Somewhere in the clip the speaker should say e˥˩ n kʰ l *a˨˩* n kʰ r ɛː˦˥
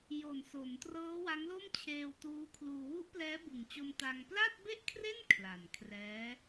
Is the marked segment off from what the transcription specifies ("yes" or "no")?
no